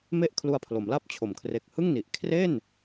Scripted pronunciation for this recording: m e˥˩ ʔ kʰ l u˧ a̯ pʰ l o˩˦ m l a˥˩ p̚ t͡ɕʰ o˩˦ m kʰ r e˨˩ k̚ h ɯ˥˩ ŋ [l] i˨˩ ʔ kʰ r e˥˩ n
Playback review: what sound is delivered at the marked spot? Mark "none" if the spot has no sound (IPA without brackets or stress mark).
n